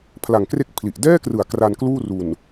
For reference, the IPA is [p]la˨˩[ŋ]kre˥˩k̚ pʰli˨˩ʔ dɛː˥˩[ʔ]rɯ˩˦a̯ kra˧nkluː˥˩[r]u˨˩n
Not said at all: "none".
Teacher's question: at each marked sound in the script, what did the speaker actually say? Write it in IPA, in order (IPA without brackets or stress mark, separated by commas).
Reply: pʰ, ŋ, k, r